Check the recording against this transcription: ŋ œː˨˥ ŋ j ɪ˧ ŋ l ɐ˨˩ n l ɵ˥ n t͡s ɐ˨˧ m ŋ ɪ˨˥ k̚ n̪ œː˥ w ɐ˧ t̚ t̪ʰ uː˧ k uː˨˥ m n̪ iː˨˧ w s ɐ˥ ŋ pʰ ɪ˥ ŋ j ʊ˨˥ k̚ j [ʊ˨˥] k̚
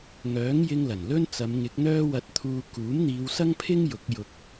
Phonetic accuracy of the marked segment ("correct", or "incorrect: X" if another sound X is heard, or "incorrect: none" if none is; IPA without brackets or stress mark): incorrect: ʊ˧